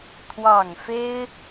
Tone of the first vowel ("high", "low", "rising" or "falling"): low